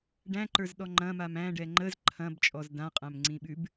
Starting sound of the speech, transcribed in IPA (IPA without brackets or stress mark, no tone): ɖ